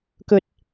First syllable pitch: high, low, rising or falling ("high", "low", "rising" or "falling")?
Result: low